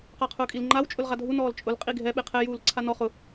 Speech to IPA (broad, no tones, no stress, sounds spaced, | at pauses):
q a qʰ ʊː kʼ i l ŋ͡ǃ a w t͡ʃʼ ʊ l ʁ a dʱ u n ɔː l t͡ʃʼ ʊ l qʼ i ɡʱ ɛ ɓ e qʰ ɛ j uː l ǀʰ a n ɔ χ ʊ